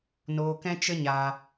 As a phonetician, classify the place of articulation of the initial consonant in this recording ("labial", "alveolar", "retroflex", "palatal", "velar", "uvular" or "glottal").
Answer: alveolar